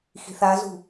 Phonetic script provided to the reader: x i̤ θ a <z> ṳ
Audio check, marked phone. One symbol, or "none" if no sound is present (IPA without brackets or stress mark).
z